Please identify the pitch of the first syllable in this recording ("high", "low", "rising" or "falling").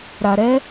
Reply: low